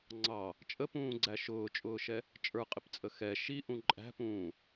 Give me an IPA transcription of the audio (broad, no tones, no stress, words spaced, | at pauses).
ŋ͡ǀɑ | t͡ʃʼəpũːɡ͡ǀæ ʃʊːt͡ʃʼʊːʃɛ | t͡ʃʼə˞qʼɪpt͡sʼə xɛ ʃiʔũ ǃʼæ̤pũː